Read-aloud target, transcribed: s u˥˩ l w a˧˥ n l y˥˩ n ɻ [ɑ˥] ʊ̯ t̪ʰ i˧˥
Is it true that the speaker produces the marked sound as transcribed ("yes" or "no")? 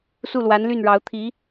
no